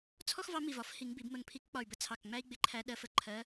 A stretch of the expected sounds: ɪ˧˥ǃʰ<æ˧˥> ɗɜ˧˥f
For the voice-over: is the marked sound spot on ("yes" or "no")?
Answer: yes